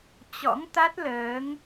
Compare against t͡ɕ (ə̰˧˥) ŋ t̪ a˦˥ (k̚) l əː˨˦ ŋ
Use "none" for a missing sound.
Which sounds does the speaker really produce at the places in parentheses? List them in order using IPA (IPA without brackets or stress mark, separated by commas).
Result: ɔ̰˧˥, t̚